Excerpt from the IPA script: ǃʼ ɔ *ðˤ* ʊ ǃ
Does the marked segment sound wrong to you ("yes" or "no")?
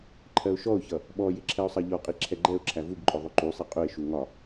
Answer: no